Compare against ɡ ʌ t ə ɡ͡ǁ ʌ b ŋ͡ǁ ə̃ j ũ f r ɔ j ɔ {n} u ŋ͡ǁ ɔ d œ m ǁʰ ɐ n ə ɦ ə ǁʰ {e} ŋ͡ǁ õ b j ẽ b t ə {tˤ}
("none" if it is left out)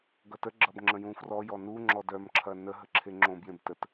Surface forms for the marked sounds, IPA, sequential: n, e, t

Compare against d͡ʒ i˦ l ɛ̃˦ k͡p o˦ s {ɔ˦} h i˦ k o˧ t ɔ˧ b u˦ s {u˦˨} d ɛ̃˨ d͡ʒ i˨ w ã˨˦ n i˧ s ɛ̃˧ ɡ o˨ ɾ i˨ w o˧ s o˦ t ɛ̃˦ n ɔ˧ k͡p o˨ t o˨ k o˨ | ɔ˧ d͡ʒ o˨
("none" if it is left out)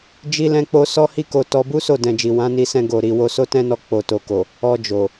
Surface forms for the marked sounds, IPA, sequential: ɔ˦, o˦˨

